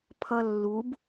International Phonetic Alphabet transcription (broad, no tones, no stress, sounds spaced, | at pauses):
pʰ ʌ lː u b